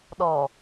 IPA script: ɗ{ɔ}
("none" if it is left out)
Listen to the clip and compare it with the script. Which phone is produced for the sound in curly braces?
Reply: ɔ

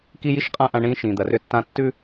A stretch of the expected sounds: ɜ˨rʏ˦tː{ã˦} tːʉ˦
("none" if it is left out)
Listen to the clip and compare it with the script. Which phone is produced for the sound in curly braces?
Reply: ã˦˨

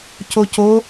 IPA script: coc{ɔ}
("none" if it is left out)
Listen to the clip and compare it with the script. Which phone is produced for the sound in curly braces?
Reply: o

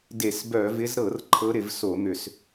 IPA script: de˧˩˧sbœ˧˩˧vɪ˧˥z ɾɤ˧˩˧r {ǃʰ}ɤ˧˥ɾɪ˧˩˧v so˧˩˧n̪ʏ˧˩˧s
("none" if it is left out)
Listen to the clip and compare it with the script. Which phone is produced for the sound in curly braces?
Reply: ǃʰ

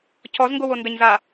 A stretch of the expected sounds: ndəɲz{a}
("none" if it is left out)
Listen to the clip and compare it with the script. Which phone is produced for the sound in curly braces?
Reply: a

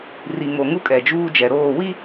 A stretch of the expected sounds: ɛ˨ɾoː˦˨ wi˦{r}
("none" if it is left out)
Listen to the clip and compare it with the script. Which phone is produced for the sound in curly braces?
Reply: none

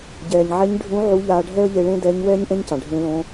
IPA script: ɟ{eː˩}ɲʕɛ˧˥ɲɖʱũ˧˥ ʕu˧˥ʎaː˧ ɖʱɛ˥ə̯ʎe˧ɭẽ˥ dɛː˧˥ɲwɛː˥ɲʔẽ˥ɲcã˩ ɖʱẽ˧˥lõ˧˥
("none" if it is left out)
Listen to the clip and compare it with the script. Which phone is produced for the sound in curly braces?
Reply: ɛː˩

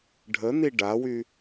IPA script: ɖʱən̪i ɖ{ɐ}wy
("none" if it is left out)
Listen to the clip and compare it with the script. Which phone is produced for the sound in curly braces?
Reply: a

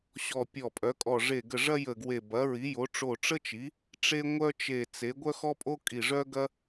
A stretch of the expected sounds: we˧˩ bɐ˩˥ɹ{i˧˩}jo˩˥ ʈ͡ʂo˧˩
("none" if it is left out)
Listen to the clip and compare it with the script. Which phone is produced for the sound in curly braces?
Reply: i˩˥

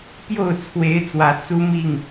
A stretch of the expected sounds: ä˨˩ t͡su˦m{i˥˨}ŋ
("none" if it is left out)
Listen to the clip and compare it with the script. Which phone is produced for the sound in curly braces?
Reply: i˥˨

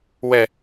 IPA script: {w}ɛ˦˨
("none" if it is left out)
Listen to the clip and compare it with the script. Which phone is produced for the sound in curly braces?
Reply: w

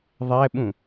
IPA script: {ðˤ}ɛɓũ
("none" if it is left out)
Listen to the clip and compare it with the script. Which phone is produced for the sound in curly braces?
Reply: ðˤ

